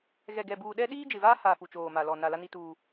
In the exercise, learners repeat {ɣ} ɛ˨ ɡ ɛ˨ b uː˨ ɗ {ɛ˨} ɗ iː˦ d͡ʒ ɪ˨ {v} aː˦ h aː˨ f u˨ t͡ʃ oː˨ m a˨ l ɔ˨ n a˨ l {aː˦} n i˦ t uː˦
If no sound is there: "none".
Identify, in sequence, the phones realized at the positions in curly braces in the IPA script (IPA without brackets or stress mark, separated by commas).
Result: ɣ, ɛ˦, v, a˦